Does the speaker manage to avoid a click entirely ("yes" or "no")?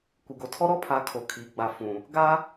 yes